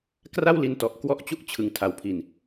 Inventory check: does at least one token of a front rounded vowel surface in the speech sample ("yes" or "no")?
no